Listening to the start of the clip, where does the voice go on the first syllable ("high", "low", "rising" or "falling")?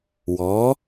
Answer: rising